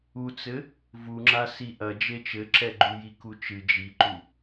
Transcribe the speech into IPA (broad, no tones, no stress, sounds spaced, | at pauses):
u t͡s ɘ | v u ŋ͡ǁ a s i ʔ ɐ d͡ʒ e t͡ʃ ɘ ǁ ɛ ɡ͡ǃ u j i k u t͡ʃ ɨ d͡ʒ i ǃ u